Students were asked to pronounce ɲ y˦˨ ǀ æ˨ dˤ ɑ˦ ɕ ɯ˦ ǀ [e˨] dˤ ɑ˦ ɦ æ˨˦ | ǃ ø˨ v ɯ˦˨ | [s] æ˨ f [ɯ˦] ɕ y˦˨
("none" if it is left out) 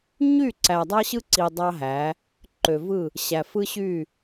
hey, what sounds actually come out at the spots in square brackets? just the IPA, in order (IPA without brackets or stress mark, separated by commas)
i˨, ɕ, ɯ˦